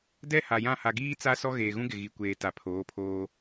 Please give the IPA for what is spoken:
d ɛ˦ h a˨ j ã˦˨ h a˨ ɡ iː˦ t͡s a˦ s ɔ˦ ɣ eː˨ ɣ ũ˦ ɡ ɪ˨ ɣ i˨ kʷ eː˨ t a˨ pʰ oː˨˦ pʰ oː˦

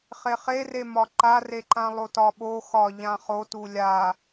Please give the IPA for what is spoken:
χ e χ e r e m ɒ ǃ a r e ǃ ã lˠ o t ɒ ɓ o x ɒ ʎ ã χ o t u lʲ a

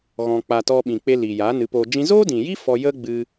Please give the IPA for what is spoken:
ɣ ɔ̃˧ k͡p a˧ t ɔ˧ ɓ ĩ˨ k͡p e˧ l iː˨ j aː˨˦ n ɨ˨˦ p oː˧ d͡ʒ ĩ˦ z oː˦ d ĩ˨ j i˦ f ɔ˧ j ə˦ ɡ͡b ɨ˦

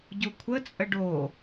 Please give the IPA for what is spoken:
ɟ u kʷʰ ə t͡sʼ ə ɖ o

